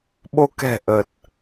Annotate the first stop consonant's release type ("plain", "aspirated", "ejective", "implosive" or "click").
implosive